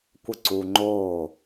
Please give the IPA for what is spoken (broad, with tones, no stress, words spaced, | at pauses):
kʷə˥˩ǀuː˧ŋ͡ǃoː˥˩